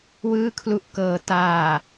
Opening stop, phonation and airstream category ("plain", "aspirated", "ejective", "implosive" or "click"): aspirated